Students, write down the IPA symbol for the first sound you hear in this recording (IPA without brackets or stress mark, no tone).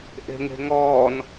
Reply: ʔ